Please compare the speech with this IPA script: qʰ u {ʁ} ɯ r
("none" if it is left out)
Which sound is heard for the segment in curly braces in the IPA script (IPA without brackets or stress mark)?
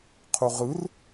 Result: ʁ